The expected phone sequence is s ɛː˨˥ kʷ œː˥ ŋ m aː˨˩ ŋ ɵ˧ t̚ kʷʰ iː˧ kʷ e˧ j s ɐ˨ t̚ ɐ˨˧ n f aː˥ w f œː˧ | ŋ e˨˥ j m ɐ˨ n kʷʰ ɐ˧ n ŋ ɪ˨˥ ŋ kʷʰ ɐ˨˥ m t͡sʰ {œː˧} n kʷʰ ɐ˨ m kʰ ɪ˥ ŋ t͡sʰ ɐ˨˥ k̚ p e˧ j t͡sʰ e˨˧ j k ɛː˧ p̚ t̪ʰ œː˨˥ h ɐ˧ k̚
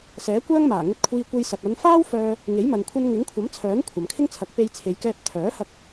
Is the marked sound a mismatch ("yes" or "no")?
yes